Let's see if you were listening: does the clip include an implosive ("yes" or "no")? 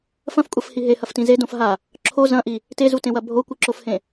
no